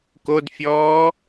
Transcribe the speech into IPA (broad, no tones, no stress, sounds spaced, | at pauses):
k o d fʲ ɔː